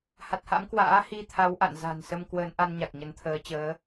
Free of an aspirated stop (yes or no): no